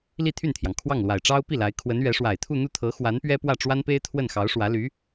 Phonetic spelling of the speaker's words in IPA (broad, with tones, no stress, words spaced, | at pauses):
li˥˧t̪ʰy˥˩nt̪ʰjɑ˩ŋ kʰwɑ˥˩ŋlwa˨˩ɪ̯ʈ͡ʂɑ˥ʊ̯ pi˥˩la˧˥ɪ̯ kʰwə˧˥nɥɛ˧˥ ʂwa˨˩ɪ̯t̪ʰu˥˧ n̪u˥˩t̪ʰɤ˧˥ xwa˧˥n pɥɛ˥pwä˥˩ʈ͡ʂwa˥npe˥ɪ̯ t̪ʰwə˥˩nxɑ˧˥ʊ̯ʂwä˧˥ ly˧˥